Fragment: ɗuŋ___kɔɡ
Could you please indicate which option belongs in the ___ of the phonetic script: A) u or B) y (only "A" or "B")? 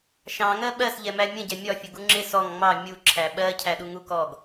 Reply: A